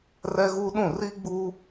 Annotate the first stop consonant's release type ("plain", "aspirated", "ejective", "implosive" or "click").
implosive